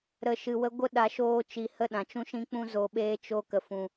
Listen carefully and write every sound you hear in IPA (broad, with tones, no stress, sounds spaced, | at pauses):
ɾ ə˦ ʃ ɨ˧ w ə˦ ɡʷ ə˦ ɗ a˧ ʃ oː˦ t͡ʃ i˧ h ə˦ ɗ ã˨ t͡ʃ ũ˦ ʃ ĩ˦ k͡p ũ˦ z o˧ ɓ eː˦ t͡ʃ o˧ k ə˨ f ũ˨